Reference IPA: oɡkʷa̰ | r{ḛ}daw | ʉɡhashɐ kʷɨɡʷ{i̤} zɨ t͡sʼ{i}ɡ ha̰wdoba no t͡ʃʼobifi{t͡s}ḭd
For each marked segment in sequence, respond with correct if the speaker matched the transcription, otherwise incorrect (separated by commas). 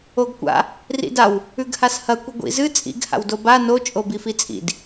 incorrect, incorrect, incorrect, incorrect